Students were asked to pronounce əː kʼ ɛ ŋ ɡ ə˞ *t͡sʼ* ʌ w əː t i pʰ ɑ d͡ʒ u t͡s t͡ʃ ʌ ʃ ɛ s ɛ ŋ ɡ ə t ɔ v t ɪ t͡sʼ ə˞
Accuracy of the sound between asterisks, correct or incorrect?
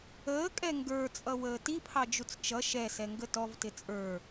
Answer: correct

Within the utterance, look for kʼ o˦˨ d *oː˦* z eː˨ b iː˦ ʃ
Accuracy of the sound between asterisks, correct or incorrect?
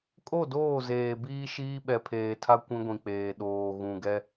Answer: incorrect: oː˦˨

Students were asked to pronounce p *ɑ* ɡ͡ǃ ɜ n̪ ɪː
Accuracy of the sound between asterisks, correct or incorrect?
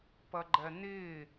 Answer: incorrect: ʌ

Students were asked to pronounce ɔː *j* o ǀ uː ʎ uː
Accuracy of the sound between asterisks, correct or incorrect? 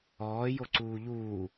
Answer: correct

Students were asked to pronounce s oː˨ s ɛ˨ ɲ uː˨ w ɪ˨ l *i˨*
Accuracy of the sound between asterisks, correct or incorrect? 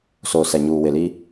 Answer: incorrect: i˦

